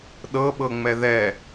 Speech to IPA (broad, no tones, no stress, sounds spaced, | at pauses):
ɗ ɤ ɓ ɤ ŋ͡m ɛ ð ɛ